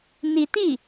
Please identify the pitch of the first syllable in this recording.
rising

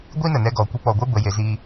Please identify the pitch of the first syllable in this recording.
high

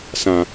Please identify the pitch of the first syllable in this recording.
low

